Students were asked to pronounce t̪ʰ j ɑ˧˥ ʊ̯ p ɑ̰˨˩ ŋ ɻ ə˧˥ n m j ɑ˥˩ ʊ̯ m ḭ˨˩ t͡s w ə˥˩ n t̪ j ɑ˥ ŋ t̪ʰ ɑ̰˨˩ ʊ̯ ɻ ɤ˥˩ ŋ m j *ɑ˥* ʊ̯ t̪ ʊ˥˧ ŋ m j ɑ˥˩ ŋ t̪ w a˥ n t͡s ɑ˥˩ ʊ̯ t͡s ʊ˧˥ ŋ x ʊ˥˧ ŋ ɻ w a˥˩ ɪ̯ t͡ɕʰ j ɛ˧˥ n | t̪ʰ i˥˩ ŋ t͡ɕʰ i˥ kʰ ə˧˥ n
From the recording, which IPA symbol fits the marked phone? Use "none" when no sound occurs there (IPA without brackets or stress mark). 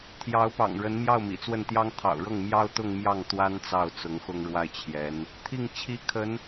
ɑ˥